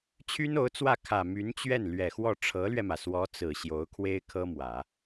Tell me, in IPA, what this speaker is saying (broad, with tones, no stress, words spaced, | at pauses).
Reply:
t͡ɕʰy˥no˧˥ʊ̯t͡swä˥˩ kʰä˨˩ my˧˥nt͡ɕɥɛ˥˩n lɥɛ˨˩xwɔ˥˩ ʈ͡ʂʰɤ˧˥lɥɛ˧mä˩ swɔ˧˥t͡sɹ̩˨˩ ɕjo˧˥ʊ̯kʰwe˥ɪ̯kʰɤ˥mwä˨˩˦